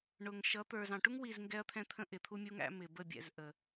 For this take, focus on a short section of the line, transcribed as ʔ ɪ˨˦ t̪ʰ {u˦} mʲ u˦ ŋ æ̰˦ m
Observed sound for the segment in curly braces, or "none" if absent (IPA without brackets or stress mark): u˦